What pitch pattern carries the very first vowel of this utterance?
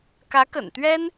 rising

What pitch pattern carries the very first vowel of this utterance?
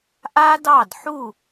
high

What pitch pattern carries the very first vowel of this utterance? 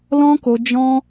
high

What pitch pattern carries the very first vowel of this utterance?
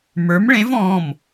rising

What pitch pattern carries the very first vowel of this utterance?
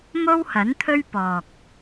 high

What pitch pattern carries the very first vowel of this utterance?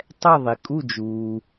falling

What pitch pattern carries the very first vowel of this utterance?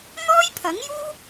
high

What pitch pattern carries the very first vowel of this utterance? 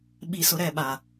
low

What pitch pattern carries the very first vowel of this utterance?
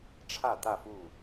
falling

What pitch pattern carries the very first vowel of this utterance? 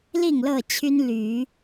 falling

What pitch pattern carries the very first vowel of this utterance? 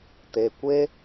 low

